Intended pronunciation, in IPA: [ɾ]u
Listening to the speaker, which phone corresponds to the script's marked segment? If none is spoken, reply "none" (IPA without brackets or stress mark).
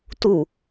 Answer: t